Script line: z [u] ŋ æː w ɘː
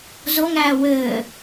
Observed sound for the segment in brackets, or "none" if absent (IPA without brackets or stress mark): o